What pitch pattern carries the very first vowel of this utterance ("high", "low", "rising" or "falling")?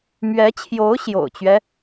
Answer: rising